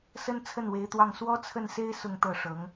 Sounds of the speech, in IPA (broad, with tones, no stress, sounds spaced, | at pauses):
s ə˥ n t͡sʰ ə˥˩ n w e˧˥ ɪ̯ t̪ w ɑ˥˩ ŋ s w ɔ˥ t͡sʰ ə˥˩ n s e˥ ɪ̯ s ʊ˥˧ ŋ t̪ ɤ˥˩ ʂ ɤ˧˥ ŋ